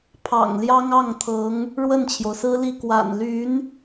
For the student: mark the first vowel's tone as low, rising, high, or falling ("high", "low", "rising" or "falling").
low